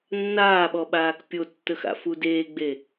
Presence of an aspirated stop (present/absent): absent